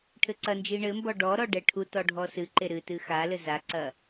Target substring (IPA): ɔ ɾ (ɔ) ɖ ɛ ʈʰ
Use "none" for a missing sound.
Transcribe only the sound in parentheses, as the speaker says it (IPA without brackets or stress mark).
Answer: ɔ